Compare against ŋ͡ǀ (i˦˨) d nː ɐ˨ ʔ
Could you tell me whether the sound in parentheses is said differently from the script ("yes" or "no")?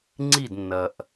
no